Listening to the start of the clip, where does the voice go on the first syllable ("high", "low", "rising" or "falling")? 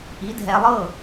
rising